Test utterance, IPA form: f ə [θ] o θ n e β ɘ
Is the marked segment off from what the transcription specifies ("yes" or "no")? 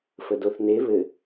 yes